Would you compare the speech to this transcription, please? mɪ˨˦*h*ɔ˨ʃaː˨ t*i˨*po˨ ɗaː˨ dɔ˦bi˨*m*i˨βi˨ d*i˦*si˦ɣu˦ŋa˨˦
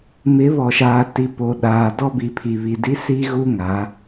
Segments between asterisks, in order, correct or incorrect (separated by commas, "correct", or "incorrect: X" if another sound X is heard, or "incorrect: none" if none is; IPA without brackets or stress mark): incorrect: β, correct, incorrect: pʰ, correct